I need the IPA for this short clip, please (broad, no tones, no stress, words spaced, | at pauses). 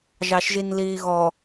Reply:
ʒɑʃʒinliːɣɔ